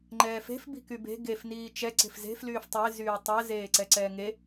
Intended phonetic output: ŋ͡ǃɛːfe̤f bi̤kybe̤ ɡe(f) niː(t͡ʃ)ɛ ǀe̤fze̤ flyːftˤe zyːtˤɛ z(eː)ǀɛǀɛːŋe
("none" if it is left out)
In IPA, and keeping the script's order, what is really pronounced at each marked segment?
f, t͡ʃ, eː

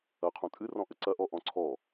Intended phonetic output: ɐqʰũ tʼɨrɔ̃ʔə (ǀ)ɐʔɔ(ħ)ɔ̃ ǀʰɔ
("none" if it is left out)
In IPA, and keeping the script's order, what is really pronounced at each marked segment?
ǀ, ʔ

